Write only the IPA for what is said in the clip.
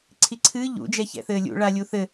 ǀʰiǀʰɨː ʎṵ d͡ʒɛçɛ̰θɘːlʲṵ ɭalʲuθɘ

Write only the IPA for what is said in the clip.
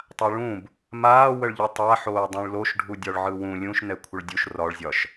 tˤaɭũb | maːwəɭʎɯ tˤa ħoːdˤũɭloʃ ɖʱudʲɒɭʕɯwũ lʲũʃnɛ kʷʰəɭdʲuʃ rɒɭzʲɒʃ

